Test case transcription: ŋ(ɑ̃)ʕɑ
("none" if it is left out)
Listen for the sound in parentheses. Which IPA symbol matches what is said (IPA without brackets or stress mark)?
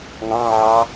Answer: ɑ̃